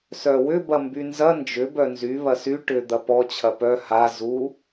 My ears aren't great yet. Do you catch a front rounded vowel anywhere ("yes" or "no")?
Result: yes